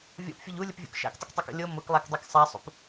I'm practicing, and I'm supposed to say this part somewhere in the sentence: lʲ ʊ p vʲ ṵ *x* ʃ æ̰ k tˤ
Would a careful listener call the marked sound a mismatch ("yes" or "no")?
yes